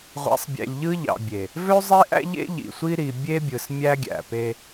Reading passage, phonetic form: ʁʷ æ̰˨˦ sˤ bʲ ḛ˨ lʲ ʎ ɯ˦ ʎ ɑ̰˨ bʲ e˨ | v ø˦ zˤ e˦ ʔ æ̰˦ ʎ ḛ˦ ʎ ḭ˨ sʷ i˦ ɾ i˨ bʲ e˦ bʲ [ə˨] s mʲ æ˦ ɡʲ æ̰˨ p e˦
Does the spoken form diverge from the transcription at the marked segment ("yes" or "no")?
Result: yes